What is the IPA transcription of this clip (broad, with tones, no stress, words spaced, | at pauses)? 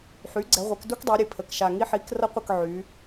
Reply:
ħy˩˥ɡ͡ǀɛ˩˧ʁʷe˩˧kdu˦k dˤe˩˧ɾʲe˨˩ pʰə˨˩k ʃa˨˩ŋi˦ħi˩˥k rʌ˦qʷə˦˨k ʕy˩˧